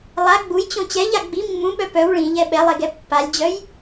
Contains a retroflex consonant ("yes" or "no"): yes